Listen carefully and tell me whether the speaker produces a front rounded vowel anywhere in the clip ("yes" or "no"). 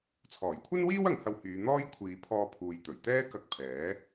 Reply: yes